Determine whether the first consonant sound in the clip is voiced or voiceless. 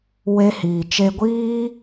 voiced